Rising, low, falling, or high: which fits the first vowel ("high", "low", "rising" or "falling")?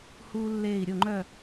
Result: high